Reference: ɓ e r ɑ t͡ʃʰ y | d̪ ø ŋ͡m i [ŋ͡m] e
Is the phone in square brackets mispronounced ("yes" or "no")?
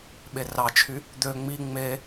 no